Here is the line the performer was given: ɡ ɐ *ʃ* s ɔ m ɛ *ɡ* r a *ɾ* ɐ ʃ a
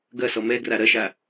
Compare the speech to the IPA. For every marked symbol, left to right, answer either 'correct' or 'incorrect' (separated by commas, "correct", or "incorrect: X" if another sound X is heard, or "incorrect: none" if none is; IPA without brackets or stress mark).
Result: incorrect: none, correct, correct